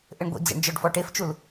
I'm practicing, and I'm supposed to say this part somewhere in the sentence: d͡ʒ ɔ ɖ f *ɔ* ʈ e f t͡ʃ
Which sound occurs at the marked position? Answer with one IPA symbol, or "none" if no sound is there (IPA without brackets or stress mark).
ɔ